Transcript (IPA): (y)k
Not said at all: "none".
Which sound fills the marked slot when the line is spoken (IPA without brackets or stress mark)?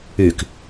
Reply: y